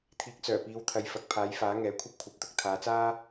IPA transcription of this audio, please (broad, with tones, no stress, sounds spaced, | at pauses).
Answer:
t̪ʰ iː˨ k̚ t͡s œː˨˩ p iː˨˧ w t̪ʰ ɐ˨ j f ɐ˨ k̚ pʰ aː˨˥ j f aː˨˥ ŋ ɛː˨˥ kʷʰ ɐ˥ p̚ kʷʰ ɐ˨˥ p̚ t̪ ʊ˨˥ k̚ t̪ʰ aː˨˧ t͡s aː˥